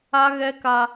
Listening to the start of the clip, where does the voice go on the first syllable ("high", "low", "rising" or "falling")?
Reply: high